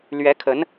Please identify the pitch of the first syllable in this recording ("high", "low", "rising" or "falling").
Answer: rising